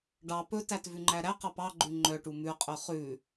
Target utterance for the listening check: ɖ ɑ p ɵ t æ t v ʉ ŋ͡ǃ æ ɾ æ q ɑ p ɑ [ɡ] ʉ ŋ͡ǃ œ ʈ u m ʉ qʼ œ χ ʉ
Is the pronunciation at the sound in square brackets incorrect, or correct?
incorrect: ɡ͡ǃ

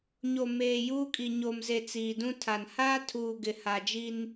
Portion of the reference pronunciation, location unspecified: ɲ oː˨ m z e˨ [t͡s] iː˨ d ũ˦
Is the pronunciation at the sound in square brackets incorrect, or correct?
correct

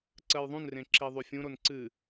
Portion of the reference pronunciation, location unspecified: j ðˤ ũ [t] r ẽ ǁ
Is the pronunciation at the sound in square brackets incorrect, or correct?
incorrect: n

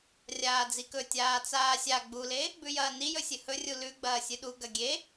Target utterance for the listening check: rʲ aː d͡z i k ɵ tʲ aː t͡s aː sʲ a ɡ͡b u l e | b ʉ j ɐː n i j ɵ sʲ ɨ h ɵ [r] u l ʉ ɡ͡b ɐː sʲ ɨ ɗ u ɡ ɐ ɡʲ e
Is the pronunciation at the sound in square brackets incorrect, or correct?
incorrect: rʲ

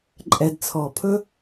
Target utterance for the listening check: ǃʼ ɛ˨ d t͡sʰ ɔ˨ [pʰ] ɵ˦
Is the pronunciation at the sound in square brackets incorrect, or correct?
correct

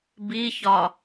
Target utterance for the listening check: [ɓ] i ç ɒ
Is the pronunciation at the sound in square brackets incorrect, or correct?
incorrect: b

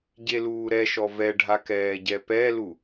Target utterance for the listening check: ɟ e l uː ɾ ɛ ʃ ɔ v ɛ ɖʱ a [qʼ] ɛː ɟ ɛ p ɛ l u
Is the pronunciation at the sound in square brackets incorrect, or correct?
incorrect: k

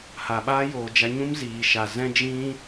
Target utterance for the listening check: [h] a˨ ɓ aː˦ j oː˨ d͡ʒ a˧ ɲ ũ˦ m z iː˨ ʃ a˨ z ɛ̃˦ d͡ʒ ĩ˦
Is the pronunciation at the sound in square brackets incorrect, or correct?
correct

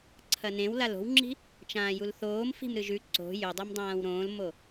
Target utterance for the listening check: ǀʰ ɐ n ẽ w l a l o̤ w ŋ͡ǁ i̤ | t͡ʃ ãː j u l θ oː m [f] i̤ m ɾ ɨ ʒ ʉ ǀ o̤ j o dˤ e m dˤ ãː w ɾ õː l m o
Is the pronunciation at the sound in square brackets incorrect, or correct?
correct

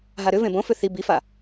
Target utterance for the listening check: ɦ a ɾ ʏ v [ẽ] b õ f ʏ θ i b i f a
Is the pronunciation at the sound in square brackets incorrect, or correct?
correct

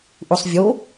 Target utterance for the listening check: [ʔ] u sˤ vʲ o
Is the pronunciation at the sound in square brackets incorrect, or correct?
correct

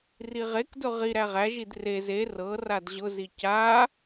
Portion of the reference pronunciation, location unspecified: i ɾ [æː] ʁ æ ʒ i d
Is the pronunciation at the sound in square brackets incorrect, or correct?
incorrect: æ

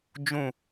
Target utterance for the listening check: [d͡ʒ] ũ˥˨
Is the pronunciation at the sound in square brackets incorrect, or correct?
correct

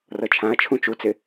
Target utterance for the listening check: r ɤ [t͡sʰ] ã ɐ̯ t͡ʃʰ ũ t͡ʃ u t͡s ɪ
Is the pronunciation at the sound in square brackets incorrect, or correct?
incorrect: t͡ʃʰ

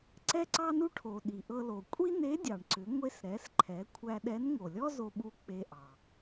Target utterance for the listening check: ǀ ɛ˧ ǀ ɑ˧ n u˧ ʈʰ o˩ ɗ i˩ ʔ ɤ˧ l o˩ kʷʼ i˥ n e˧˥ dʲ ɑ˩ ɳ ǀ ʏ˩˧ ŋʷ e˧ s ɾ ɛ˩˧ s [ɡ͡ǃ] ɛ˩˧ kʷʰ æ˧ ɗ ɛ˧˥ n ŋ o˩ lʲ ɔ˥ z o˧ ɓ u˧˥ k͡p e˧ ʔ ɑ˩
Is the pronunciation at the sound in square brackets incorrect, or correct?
incorrect: ǃʰ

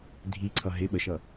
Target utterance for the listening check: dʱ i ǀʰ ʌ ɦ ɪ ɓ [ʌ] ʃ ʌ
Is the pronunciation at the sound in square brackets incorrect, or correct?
incorrect: ə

